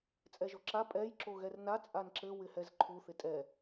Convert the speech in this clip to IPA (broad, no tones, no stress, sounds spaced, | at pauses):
t͡sʼ ɛ ʒ o ǁ a pʼ ɛ j ǁ o ɣ ɛ r n a t͡sʼ a n ǁ ɘ w ɪ h ɛ z ǃʰ u θ ɪ tʼ ɛ